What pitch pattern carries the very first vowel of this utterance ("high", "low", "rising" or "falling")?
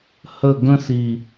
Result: falling